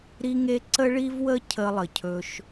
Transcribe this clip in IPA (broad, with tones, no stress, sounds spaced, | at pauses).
ɾ i˦ ŋ e˦ ǀ ə˦ ɭ i˦ v w ə˦ cʰ ə˦ lˠ ə˨ cʰ ɵ˦ ʃ